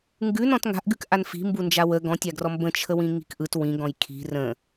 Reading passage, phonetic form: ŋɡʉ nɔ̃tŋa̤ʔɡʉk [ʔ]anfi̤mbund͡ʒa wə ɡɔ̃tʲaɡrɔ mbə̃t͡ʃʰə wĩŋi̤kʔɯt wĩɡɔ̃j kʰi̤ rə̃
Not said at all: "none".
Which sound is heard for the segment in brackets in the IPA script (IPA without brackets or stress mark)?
ʔ